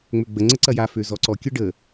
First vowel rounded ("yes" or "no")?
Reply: yes